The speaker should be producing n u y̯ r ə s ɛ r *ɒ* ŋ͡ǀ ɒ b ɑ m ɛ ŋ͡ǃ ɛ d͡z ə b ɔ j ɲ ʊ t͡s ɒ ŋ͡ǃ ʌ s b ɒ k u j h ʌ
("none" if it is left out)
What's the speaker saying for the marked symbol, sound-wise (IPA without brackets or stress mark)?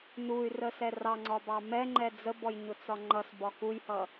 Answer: ɑ